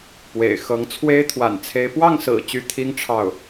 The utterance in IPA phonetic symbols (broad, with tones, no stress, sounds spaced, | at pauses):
p w ḛ˨˩ ɪ̯ x ɤ˧˥ ŋ t͡sʰ w e˥ ɪ̯ t̪ʰ w a̰˨˩ n t͡sʰ e˧˥ ɪ̯ p w ɑ˥˩ ŋ s ɹ̩˨˩ t͡ɕ y˧˥ t̪ʰ i˥ ŋ ʈ͡ʂʰ ɑ˥˩ ʊ̯